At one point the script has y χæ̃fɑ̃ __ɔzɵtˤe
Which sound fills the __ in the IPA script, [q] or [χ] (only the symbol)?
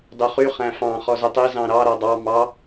χ